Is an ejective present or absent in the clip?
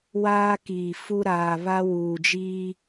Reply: absent